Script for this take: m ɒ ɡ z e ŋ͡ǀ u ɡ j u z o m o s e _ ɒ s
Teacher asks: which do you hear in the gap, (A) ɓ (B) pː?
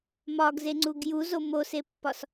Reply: B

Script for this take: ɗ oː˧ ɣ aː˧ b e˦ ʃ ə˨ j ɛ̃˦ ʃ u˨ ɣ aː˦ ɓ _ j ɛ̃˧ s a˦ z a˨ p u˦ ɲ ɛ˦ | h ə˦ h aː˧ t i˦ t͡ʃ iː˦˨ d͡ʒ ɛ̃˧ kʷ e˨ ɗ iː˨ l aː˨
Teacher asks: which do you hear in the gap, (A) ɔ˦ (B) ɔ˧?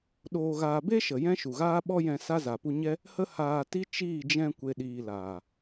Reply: A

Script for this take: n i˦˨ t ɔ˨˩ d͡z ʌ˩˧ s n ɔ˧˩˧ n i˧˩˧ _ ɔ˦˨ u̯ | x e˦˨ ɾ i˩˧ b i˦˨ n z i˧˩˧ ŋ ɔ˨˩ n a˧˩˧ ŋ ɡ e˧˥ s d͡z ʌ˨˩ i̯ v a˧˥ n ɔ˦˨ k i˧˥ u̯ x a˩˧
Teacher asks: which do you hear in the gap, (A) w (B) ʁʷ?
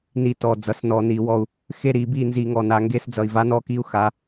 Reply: A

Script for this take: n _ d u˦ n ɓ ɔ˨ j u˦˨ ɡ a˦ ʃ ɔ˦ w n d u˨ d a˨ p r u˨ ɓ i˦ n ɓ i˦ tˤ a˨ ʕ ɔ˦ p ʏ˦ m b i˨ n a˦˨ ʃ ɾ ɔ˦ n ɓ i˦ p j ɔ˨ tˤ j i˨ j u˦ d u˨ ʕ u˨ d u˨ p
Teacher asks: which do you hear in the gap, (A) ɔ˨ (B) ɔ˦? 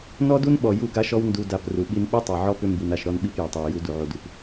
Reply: B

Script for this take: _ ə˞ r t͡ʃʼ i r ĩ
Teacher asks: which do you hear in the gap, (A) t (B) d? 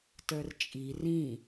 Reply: A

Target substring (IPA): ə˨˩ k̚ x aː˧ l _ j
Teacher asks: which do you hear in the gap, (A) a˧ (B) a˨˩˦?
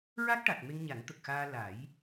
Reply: B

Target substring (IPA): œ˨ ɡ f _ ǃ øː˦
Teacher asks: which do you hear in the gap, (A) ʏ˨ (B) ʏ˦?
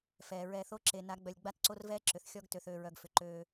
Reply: A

